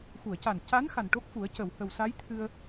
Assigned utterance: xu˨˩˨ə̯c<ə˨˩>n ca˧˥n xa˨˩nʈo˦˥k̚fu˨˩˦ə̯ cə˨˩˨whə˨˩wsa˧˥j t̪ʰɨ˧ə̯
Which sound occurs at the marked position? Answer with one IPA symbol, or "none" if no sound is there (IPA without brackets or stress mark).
a˨˩